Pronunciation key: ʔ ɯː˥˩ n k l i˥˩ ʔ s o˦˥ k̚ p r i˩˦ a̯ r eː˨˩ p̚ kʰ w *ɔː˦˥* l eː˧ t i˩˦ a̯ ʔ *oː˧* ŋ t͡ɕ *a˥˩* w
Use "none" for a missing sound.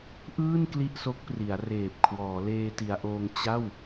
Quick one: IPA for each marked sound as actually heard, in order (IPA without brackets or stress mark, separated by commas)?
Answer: ɔː˩˦, oː˧, a˥˩